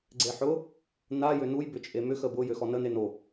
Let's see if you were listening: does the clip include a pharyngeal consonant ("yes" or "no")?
yes